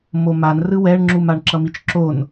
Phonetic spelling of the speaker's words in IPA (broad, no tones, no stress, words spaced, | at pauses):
moman rɯwɛɳŋ͡ǁum aɳǁʌmit͡ʃǁon